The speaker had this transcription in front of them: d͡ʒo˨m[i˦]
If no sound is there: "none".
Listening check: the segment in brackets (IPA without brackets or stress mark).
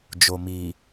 i˨